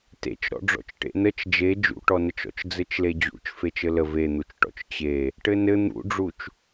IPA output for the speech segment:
t ḛ t͡ʃ ɾ ɔ̰ ɖ͡ʐ ɔ̰ t͡ʃ ʈ ḛ n ə t͡ʃ d͡ʒ e d͡ʒ ṵ ʈ ɔ n ə t͡ʃ ɔ̰ t͡ʃ d͡z ɘ t͡ʃ l e d͡ʑ ṵ t͡ʃ f e t͡ʃ ɘ l ə v e n̪ u t͡ʃ ʈ ɔ̰ t͡ʃ t͡ɕ e | ʈ ɘ n ɘ n̪ ṵ ɖ͡ʐ u t͡ʃ

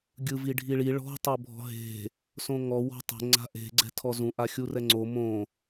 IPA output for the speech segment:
ɡʲ ɯ v i ɖʱ i ɭ i ɭ ɔ̤ tˤ ɤ bʱ ɔ̤ ɦ e̤ | s õ ŋ ɔ w ɔ̤ tˤ e̤ ŋ͡ǀ a̤ ʔ e̤ ɡ͡ǀ ɛ̤ tʰ ɔ z ũ ʔ a xʲ u r ɛ ŋ͡ǀ o m õ

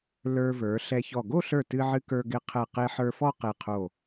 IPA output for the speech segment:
l ə˞˧ v ə˞˩˧ ɬ ɛ˧ ç ɔ˧˩ ɡ o˥˧ ɬ ə˞˧˩ t ɨ˧ ʕ ɨ˧ k ə˞˧ ɡ ɪ˧ qʰ ɛ˧˩ q e˧ ħ ə˞˧ f ɔ˥˧ q e˧˩ qʰ o˧˩

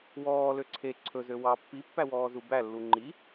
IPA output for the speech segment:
w ɔː l ø ǀʰ e ǀʰ ɵ z ø w ɑ pː i pː æ w ɔː z u b æ lː u ŋ͡ǃ i

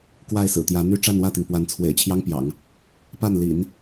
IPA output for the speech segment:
k w a˥˩ ɪ̯ s ɹ̩˨˩ t̪ j ä˧˥ n̪ y˥ ʈ͡ʂ a˥˧ n w ä˥˩ t̪ i˩ ŋ p w a˧˥ n t͡sʰ w ḛ˨˩ ɪ̯ t͡ɕʰ j ɑ˥ ŋ p j ɑ̰˨˩˦ ŋ | p a˥˩ n l ḭ˨˩˦ n

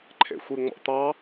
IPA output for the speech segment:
ǃʰ ḛ xʷ i ŋ͡m ɔ̰ t̪ ɑ

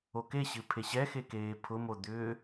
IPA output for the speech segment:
o k e ɕ ɨ pʰ e ɕ ɛ x e k eː pʰ ʊ m o d̪ ʏ

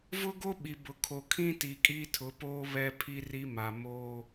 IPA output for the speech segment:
v ʊ˦ ɡ o˦ ɓ i˨ b ʊ˨ kʰ o˨ kʰ ĩ˦ t i˨ kʼ i˦ tʰ ʊ˨˦ p oː˦ β ɛ˦ pʰ i˦ r i˦ m a˨ m oː˦

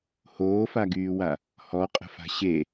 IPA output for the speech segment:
h oː f a ɡ yː w a | h ɔ qʼ ə̤ f a̤ ɕ e

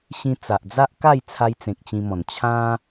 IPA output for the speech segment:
ɕ ĩ˧ t͡s a˨ ʔ d͡z a˦ ʔ k a˥˧ j t͡sʰ a˧ j t͡s ẽ˨ k̚ t͡ɕ ĩ˧ m ɔ̃˨˩ n t͡ɕʰ ã˦

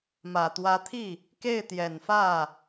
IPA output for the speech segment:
m ä˨˩ t̪ w ä˧˥ t̪ʰ i˥˩ | k e˥˩ ɪ̯ t̪ j ɛ˨˩ n f ä˥˩

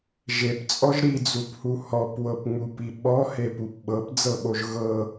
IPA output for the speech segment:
ʒ e p t͡sʼ ɔ ʒ ɾ i d͡z u p h u h ɔ p w ɤ p ŋ͡m u p i ɓ ɔ h e p u p ɓ ɤ p d͡z ɤ ɓ o ʒ ɣ ɤ

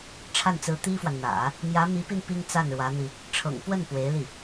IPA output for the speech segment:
ʈ͡ʂʰ a˥˩ n t͡s ɹ̩˧˥ t̪ i˥ f w a˨ n n̪ ä̰˨˩˦ | m j ä˧˥ m i˧˥ p i˧ n p i˥ ŋ t͡s a˥˩ n ɻ w ä˧˥ n̪ i˧ | ʈ͡ʂʰ ɤ̰˨˩ ŋ p w ə˥˩ n p w e˧˥ ɪ̯ l i˥˩

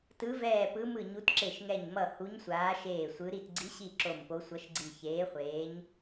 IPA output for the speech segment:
t ɯ˨˦ v ɛː˧˩ p ɯ˨˦ m ɯ˧˩ ɲ u˨˦ t ǁ e˧˩ ʃ ŋ ɛ˧˩ ɲ m ʌ˧˩ h u˨˦ ɲ sʷ aː˨˦ ʃ eː˧˩ sʷ ɯ˨˦ ɾ i˧˩ t ɡ͡ǀ i˨˦ ɕ i˧˩ ǁ o˧˩ m p o˨˦ sʷ ʌ˨˦ ʃ ɡ͡ǀ i˧˩ ç eː˨˦ χʷ eː˨˦ ɲ

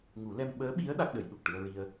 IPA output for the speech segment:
ŋ u˨˩˦ l ɛ˧ m ɓ əː˧˥ ɓ i˧˥ ə̯ ɗ a˦˥ k̚ ɗ ə˨˩˦ j ɗ u˨˩ k̚ ʈ ɨ˧ ə̯ ɹ i˧ ə̯

